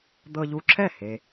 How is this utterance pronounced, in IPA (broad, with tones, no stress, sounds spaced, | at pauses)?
d̪ ɤ˧ ʎ u˧ ǁʰ ɛ˥˩ h e˧